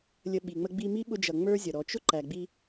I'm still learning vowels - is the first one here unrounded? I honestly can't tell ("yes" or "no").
yes